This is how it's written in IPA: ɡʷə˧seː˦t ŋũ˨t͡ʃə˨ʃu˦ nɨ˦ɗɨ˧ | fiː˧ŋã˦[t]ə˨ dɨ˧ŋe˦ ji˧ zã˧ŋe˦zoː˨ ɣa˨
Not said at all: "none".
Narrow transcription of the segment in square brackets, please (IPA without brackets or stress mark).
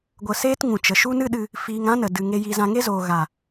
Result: n